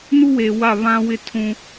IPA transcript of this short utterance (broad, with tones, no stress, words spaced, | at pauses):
nu˦we˨ wa˦˨βã˦wɪ˦ tʰũ˦